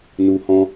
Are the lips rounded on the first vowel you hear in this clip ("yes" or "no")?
yes